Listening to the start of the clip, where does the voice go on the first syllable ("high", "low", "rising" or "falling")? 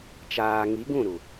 low